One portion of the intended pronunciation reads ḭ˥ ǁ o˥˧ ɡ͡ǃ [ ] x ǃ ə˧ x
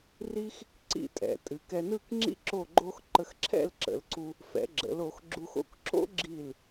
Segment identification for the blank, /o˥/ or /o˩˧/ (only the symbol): o˥